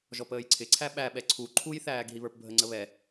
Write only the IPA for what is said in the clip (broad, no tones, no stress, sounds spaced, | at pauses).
ʒ ɔ p əː j ǀʰ ɪ ǀʰ æ ɓ æ ɓ ɛ ǀʰ u ǃʰ u j θ æː ɡ ɦ i β ə˞ p bʱ ə ŋ͡ǀ ə β ɛ